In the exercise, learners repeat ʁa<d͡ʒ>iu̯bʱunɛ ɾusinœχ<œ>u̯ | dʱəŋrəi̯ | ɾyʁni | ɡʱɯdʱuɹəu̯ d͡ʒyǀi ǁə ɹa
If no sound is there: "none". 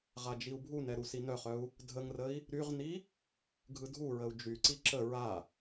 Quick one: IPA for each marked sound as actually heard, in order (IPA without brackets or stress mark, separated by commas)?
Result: d͡ʒ, œ